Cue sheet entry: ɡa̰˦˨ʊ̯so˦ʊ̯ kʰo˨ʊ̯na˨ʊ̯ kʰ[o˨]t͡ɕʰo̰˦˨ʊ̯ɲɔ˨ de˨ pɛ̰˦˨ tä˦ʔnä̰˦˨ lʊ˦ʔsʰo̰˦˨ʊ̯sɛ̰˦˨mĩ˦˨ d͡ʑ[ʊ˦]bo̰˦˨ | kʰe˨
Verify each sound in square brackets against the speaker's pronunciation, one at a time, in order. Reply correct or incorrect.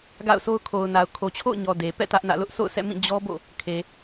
correct, incorrect: ɔ˦

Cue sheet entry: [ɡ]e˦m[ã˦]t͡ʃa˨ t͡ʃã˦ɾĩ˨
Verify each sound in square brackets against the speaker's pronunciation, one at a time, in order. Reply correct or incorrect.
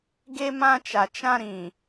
correct, correct

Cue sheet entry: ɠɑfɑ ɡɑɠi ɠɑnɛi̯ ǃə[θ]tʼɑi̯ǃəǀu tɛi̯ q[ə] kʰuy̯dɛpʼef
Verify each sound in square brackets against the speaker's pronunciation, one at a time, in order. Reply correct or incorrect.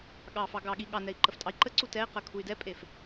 incorrect: f, correct

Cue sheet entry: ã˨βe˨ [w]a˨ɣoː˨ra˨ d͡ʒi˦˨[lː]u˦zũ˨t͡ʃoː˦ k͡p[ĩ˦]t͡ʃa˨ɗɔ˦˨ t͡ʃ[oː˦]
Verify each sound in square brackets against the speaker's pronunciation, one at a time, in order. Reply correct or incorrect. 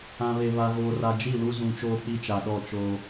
incorrect: β, incorrect: l, incorrect: i˦, correct

